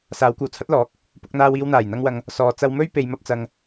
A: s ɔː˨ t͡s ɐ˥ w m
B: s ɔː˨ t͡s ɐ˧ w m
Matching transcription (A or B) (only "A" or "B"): B